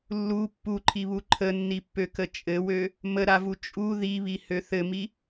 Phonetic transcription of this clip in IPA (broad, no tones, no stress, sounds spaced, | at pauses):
lː u pː u ǃʰ i β u ǃʰ ə nː i pː ø k ə t͡ʃʼ ɘ w ø | m ə ɾ a v u t͡ʃʼ u ð i β i h ø θ ɘ m i